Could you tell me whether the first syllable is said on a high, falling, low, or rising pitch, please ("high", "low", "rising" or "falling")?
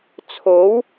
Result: rising